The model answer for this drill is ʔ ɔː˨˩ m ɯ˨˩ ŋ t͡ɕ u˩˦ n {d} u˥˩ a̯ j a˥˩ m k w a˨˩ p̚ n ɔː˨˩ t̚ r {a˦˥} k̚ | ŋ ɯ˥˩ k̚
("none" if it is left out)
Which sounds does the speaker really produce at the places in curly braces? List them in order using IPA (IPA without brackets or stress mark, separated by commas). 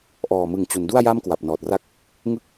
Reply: d, a˥˩